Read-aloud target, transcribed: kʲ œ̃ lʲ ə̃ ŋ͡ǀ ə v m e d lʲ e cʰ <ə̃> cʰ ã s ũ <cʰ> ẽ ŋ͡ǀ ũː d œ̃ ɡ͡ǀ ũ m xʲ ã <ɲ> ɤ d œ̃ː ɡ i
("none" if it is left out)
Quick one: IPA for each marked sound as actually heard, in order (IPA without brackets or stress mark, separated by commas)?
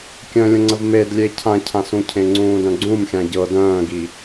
ã, cʰ, ɟ